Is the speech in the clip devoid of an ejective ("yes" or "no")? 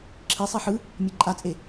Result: no